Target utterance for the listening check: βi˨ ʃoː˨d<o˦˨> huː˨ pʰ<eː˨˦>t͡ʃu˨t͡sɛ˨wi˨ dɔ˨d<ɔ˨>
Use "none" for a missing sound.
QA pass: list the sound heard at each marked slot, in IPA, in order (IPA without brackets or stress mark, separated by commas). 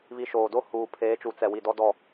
o˦˨, eː˨˦, ɔ˨